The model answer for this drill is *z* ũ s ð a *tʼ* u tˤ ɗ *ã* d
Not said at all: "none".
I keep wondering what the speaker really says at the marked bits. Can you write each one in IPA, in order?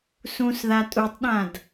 s, tʼ, ã

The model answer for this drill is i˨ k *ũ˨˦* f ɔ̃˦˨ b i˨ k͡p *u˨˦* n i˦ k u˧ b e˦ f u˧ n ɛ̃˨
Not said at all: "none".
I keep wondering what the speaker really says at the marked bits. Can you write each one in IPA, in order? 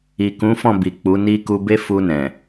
ũ˨˦, u˨˦

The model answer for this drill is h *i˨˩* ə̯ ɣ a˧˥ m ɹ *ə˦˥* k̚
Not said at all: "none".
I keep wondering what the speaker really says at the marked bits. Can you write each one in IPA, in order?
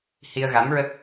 i˧, ə˦˥

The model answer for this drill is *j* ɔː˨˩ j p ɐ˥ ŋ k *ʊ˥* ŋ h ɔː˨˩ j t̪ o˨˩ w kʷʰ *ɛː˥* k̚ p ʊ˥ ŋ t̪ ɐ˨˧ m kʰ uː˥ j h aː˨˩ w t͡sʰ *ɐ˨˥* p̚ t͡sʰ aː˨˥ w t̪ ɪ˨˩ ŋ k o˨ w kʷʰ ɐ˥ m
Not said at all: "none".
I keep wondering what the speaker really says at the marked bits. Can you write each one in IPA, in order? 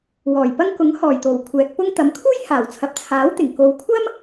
w, ʊ˨˥, ɛː˨, ɐ˨

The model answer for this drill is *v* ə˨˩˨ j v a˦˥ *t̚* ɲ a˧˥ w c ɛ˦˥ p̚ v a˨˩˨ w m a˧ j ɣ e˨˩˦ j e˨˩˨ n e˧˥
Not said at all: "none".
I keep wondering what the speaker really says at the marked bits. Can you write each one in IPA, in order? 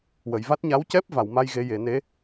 w, t̚

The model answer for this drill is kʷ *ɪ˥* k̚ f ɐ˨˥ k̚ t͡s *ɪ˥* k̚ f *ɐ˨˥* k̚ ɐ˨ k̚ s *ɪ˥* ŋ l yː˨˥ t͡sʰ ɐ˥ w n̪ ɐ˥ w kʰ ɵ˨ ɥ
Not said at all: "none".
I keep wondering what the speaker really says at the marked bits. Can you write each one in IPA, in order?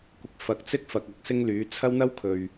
ɪ˨˥, ɪ˥, ɐ˨, ɪ˥

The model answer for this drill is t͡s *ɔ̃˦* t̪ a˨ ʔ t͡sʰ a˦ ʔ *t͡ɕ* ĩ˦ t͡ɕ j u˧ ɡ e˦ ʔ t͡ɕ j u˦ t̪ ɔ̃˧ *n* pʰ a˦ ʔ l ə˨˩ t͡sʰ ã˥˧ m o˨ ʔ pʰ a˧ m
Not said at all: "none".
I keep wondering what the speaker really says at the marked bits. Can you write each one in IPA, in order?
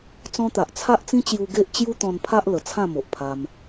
ɔ̃˦, t͡s, n

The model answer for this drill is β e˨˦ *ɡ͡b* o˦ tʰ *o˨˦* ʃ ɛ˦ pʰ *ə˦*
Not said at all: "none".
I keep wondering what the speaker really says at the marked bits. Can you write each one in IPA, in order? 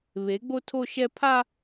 ɡ͡b, o˦, a˦

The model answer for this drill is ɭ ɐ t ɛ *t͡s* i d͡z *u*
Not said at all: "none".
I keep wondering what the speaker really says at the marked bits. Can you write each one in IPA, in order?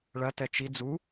t͡ʃ, u

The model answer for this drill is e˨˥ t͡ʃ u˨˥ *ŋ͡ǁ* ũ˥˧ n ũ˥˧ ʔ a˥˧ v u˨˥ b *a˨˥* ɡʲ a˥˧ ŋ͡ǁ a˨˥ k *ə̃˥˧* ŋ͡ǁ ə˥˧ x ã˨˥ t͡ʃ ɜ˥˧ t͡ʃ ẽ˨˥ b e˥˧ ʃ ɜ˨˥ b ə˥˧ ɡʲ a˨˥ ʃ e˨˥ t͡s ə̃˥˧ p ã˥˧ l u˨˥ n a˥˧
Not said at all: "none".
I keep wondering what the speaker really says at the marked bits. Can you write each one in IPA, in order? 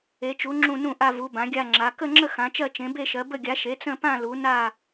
ŋ͡ǁ, ã˨˥, ə˥˧

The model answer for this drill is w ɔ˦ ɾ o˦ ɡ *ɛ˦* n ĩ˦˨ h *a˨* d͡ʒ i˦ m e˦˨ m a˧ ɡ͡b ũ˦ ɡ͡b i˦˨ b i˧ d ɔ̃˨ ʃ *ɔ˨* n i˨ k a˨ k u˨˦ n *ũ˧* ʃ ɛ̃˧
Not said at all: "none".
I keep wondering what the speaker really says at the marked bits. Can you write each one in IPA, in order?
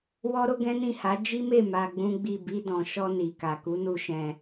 ɛ̃˦, a˨˦, ɔ˧, u˧

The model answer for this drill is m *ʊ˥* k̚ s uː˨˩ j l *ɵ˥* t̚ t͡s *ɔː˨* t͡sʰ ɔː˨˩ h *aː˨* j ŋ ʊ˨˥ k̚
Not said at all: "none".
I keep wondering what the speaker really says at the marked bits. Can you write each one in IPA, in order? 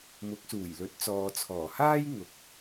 ʊ˨˥, ɵ˨˥, ɔː˨, aː˥

